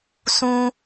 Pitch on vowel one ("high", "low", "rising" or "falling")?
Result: high